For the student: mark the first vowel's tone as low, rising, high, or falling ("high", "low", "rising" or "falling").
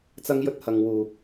high